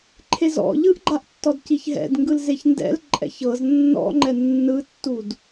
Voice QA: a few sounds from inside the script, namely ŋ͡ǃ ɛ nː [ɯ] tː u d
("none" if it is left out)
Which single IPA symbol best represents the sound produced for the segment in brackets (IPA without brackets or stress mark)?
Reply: ɯ